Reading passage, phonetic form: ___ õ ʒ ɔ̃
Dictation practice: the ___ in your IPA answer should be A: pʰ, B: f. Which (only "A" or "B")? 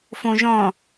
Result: B